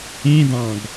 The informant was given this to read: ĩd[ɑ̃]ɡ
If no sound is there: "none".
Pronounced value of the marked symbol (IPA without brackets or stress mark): ɑ̃